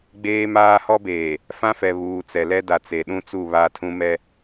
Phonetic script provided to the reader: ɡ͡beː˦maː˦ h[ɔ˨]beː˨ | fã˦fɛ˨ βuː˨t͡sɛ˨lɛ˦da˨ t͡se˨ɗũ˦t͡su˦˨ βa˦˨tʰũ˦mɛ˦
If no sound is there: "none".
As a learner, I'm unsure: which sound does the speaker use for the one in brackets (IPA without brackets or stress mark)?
ɔ˦